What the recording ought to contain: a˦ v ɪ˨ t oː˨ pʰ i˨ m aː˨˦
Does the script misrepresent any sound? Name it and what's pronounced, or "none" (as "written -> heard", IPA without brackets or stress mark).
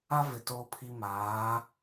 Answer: none